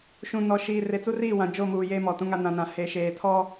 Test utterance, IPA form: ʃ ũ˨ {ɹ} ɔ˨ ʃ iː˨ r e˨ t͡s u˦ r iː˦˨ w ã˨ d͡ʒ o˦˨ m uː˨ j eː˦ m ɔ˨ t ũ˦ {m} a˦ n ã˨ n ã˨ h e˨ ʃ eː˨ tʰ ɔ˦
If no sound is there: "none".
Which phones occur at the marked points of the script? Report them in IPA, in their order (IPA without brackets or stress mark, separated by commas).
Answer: n, ŋ